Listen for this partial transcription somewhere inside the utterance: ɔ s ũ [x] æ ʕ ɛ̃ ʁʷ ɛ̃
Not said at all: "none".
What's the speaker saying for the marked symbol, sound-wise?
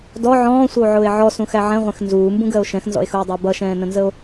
x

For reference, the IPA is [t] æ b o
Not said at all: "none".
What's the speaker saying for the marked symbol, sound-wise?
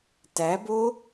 t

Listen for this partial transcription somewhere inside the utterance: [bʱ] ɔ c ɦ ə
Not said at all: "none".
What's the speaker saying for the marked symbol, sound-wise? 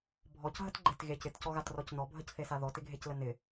bʱ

